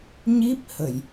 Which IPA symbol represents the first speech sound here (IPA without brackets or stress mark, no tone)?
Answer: ɲ